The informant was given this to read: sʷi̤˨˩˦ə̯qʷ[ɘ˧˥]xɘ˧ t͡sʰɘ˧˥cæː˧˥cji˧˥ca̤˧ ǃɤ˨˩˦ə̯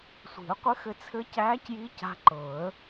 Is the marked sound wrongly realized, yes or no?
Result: no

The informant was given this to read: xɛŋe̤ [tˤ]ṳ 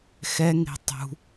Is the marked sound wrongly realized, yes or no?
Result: no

